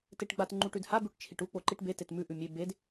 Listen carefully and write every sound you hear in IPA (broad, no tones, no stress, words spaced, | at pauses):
teʈɡ͡bat ŋ͡ǃuʈʉdha bʉʈt͡ʃʰiʈu k͡poǃiʈbe tetmʉ ʔʉmʲe bed